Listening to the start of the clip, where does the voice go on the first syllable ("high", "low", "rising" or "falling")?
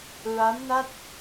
rising